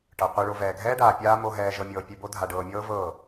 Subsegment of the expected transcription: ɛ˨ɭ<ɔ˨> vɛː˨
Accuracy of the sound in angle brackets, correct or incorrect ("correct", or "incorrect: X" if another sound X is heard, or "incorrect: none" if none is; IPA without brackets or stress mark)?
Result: incorrect: o˨